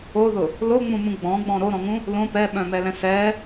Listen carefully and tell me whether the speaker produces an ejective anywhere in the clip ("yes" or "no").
no